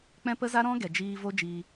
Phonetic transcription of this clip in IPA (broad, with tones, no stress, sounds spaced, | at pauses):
k͡p ɛ̃˦ p ə˦ z a˦ ɾ ɔ̃˦ ɡ ɛ˨ d͡ʒ iː˧ v o˦ d͡ʒ iː˧